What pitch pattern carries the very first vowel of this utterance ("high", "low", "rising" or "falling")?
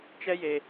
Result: high